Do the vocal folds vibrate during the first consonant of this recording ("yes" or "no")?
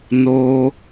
yes